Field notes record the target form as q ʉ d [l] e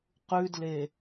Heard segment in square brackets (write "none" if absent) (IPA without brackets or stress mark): l